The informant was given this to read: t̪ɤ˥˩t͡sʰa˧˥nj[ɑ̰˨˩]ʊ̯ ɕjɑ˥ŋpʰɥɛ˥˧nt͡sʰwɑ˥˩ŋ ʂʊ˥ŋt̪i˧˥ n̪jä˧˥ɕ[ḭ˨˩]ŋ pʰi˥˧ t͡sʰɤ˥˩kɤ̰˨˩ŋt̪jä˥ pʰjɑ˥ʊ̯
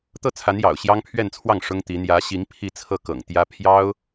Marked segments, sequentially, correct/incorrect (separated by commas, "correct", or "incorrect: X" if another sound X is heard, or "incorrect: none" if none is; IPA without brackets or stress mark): correct, incorrect: i˧˥